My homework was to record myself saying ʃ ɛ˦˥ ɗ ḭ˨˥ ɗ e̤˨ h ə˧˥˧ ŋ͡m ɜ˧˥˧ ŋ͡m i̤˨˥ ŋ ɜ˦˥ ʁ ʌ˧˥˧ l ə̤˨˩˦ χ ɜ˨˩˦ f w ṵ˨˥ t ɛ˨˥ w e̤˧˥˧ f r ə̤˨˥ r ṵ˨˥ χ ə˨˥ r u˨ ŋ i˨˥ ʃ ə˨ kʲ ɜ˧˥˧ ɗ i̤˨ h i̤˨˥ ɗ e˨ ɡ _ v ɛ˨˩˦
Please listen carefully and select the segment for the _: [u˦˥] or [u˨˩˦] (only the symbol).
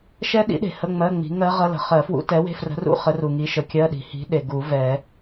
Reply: u˨˩˦